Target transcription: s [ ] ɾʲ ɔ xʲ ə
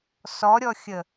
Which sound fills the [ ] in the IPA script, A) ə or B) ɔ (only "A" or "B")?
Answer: B